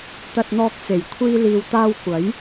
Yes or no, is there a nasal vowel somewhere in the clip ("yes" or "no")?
no